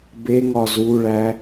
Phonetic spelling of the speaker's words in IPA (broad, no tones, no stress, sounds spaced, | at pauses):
b e ŋ ɒ z u ɭ æ